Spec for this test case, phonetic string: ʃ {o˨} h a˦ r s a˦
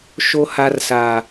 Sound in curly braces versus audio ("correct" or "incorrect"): incorrect